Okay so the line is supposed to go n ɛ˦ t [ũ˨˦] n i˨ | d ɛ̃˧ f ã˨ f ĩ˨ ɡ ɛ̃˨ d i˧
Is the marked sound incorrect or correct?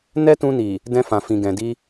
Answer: incorrect